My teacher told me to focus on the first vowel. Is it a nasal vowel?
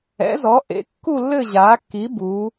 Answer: no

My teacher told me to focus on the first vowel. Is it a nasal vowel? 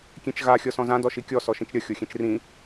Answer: yes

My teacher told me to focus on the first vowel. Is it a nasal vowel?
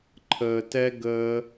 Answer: no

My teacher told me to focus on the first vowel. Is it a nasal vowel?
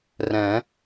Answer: yes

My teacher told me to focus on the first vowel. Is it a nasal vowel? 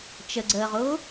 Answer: no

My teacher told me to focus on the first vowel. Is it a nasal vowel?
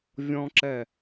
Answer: yes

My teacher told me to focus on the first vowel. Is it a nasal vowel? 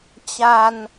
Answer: no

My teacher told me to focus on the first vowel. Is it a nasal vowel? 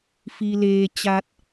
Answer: no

